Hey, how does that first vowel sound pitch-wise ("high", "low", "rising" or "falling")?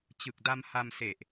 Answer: low